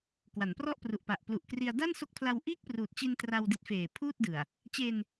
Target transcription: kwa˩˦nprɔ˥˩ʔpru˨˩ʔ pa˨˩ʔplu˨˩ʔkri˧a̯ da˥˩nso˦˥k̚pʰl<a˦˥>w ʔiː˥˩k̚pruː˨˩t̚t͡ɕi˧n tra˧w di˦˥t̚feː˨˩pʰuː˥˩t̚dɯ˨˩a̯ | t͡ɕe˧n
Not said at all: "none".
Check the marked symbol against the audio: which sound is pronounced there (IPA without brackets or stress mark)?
a˧